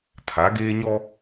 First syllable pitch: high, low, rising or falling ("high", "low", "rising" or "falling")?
rising